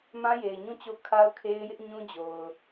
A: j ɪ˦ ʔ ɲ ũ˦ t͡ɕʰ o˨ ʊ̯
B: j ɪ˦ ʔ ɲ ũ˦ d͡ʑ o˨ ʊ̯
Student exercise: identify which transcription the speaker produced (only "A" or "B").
B